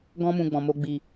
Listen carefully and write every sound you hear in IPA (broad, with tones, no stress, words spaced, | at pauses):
ɡɔ̃˧mũ˨ ɡ͡bɔ̃˨mo˧ ɡ͡bi˨